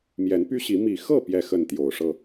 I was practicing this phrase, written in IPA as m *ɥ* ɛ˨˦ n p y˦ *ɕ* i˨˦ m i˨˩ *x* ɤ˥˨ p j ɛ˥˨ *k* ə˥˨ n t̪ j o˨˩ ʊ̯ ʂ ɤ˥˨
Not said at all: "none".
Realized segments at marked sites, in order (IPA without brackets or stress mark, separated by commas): j, ɕ, x, x